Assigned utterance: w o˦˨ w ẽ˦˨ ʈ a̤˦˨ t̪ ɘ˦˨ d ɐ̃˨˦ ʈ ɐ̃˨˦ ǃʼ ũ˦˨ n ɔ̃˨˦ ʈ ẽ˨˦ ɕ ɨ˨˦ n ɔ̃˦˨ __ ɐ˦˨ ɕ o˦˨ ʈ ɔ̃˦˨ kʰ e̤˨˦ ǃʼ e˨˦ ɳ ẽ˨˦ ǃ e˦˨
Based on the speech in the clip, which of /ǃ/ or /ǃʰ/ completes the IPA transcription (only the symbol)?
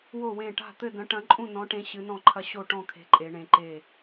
ǃʰ